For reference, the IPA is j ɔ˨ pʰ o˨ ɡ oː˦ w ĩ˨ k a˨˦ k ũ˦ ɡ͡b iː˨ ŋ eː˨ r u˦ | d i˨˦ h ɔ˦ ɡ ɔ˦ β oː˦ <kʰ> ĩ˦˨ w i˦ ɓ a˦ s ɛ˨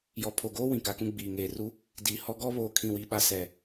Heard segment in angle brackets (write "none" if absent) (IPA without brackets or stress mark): kʰ